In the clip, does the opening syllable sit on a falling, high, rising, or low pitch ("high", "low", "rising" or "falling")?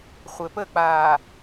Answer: low